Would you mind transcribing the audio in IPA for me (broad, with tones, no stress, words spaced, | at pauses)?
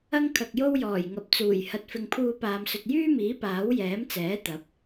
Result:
ɐ˥ŋkʰɐ˨k̚jo˥w jɔː˨˩jŋɐ˨p̚t͡suː˨˩j hɐ˨t̚fɪ˨ŋpʰuː˧ paː˨msɵ˨t̚jyː˥miː˨˥ paː˨˥w jɛː˨˥mt͡sɛː˨˥ t̪ɐ˨˥p̚